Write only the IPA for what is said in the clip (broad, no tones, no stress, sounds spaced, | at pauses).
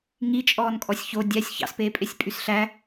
ŋ i t͡ʃʼ ɔː n kʼ ɔ sʲ ç o dʲ æ sʲ ç ɑ̰ s p eː pʼ e sʲ pʼ y s ɬ æ